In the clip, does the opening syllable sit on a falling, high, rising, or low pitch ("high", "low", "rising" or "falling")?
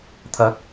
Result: rising